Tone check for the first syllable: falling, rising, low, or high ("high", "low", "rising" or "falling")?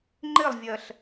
falling